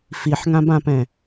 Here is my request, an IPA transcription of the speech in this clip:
f i ħ ŋ ã b ã p ɛ̃

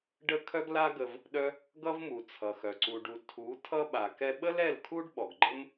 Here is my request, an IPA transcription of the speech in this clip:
ɖ ə˦ kʰ œ˦ ɡ l a˦ ɡ ə˧ v | ɗ œ˦ | ɡ ʌ˦ v m u˨ t͡sʰ ʌ˨ x œ˨ ǀ u˧ ɖ u˧ tʰ u˨˦ tʰ ʌ˦ ɓ a˨ k ɛ˧ ɓ ə˦ l ɛ˦˨ l kʰ u˦ ɖ ɓ ɔ˨ ɡ ɡ͡ǃ ə˦ m

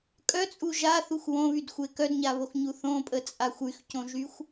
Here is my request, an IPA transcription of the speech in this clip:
kʼ œ t͡sʼ u ʒ a θ u xʷ w õ β y d xʷ e k œ d ɲ a β o x ɲ u θ õ pʼ ə t͡sʼ a xʷ y x c õ ʒ y xʷ

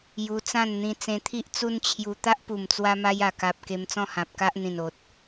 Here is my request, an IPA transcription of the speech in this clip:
j u˧ t͡s ã˥˧ n n̪ ĩ˧ t͡s ẽ˧ t̪ʰ i˦ ʔ t͡s u˦ n t͡ɕʰ j u˧ t̪ a˦ ʔ p u˨˩ m t͡s w a˧ m a˧ j a˨˩ k a˨ p̚ k e˧ m t͡s ɔ̃˥˧ h ã˨ p̚ k a˦ ʔ n̪ ĩ˨˩ n o˨ t̚

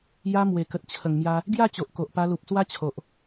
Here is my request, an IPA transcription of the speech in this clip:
j a˧ m w e˨˩ k ə˨ t̚ t͡ɕʰ ə˨˩ ŋ m j a˧ | ɡ j a˥˧ t͡ɕ o˨ ʔ k o˨ ʔ p a˧ l u˨ p̚ s w a˦ t͡ɕʰ o˨ ʔ

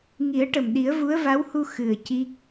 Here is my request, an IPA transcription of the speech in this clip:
ŋ i˨˩˦ ə̯ ʈ ə˨˩ m ɗ i˨˩˦ ə̯ v u˧˥ ə̯ v a˧˥ w h u˧ x ɨ˨˩ ə̯ c i˦˥ k̚

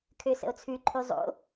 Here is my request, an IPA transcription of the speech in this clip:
kʰ ø s ə̰ o̯ t͡sʰ ʉ ǃʰ ʉ zˤ o̰

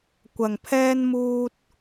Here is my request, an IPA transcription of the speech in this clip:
kʷ ɐ˧ ŋ pʰ ɛː˥ n m uː˥ t̚

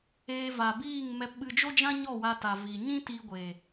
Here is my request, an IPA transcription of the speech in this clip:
eː˧ v a˨ b iː˦˨ ŋ m ɛ˧ p ɓ ɨ˧ d͡ʒ o˦ d͡ʒ ã˦ ɲ ɔ˦˨ w a˧ t a˨ v i˨ ɲ ĩ˦ t i˧ ɡʷ e˨

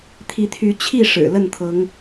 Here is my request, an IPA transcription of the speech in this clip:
t̪ʰ i˨˦ t̪ʰ y˨˦ t͡ɕʰ i˥˨ ʂ ɻ̩˨˩ l ə˥˨ n t̪ʰ ɤ˨˦ ŋ

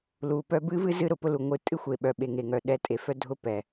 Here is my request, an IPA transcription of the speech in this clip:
l u˨ p œ˦ b ɨ˦ v ɨ˦ z ɨ˦ ɾ ʊ˨ p ʊ˦ l u˨ ŋʷ ɨ˦ tʼ ɨ˦ xʷ e˨ ɓ œ˨ ɓ e˨ ŋ e˨ ŋ œ˨ ɗ ɛ˨˦ tʼ e˨ f œ˦ dʱ ʊ˦ p ɛ˨

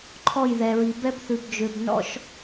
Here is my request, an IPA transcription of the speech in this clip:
ǃʰ ɔ˦˨ j ð ɛ˨ ɹ i˨ b ɛ˦ b θ ʉ˨ b d͡ʒ ø˨ b n ɔ̰˦ ʃ

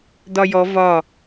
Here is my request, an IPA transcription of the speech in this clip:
d ɒ j ɔ v ɒ

